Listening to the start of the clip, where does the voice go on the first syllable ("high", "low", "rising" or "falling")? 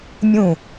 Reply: falling